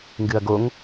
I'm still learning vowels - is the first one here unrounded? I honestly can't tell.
yes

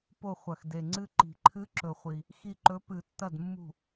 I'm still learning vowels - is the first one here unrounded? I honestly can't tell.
no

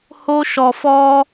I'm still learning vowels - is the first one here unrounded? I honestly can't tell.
no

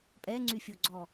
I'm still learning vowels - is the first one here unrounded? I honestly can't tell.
yes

